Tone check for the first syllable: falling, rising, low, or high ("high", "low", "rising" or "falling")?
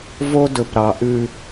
high